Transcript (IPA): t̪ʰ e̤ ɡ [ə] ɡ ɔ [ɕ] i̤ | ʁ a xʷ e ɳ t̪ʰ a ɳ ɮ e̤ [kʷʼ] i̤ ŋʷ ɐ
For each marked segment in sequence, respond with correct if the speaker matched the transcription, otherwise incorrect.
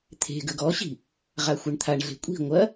correct, correct, correct

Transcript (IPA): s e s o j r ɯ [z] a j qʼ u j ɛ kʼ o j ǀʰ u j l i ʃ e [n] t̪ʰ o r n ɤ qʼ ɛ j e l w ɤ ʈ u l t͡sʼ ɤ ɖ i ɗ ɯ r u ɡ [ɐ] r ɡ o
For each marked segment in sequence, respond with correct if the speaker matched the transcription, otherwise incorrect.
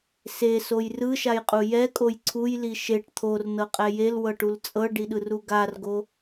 incorrect: ʃ, incorrect: ʈ, incorrect: a

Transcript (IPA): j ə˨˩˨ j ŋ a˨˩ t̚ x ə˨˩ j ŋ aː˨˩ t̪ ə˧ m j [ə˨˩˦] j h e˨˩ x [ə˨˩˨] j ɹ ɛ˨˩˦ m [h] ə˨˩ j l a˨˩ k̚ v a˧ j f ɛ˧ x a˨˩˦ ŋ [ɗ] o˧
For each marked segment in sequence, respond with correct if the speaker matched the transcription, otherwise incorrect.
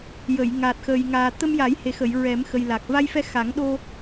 incorrect: a˨˩˦, correct, incorrect: x, correct

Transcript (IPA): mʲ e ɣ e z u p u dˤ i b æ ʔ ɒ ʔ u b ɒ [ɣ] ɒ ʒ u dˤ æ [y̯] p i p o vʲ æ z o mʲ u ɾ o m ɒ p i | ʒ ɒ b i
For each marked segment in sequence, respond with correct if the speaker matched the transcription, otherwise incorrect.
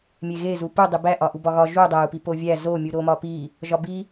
correct, incorrect: u̯

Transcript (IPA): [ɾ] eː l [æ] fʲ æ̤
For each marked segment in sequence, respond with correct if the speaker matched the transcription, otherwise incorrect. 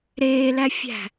correct, correct

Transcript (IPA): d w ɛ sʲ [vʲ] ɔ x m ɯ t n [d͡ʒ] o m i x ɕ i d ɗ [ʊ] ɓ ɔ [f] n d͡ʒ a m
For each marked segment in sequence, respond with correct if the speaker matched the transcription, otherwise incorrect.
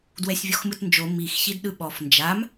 correct, correct, incorrect: ɯ, correct

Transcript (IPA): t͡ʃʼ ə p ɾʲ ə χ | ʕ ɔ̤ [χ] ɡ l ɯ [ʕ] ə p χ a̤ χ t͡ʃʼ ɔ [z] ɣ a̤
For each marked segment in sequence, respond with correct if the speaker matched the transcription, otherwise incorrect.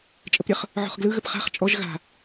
correct, incorrect: ɣ, incorrect: ʒ

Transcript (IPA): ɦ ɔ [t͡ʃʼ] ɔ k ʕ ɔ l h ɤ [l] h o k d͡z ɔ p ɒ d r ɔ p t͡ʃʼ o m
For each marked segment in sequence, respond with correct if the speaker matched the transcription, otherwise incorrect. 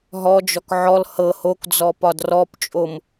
incorrect: d͡ʒ, incorrect: none

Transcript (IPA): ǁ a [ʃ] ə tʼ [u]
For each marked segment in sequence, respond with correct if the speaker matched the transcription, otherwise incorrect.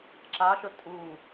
correct, correct

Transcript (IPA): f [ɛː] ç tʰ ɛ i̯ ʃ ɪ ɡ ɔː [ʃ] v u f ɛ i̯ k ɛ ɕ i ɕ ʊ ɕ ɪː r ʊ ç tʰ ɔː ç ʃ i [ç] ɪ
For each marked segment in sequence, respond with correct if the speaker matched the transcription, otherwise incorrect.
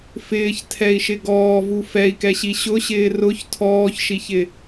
incorrect: ɪː, incorrect: none, correct

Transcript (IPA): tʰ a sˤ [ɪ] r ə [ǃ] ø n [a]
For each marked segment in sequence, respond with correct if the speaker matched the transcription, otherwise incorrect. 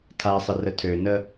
correct, incorrect: tʰ, incorrect: ə

